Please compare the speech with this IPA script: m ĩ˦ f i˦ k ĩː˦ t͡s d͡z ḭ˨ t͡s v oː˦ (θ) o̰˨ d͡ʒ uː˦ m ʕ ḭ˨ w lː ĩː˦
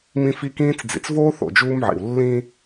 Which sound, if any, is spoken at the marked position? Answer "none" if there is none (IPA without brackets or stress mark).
θ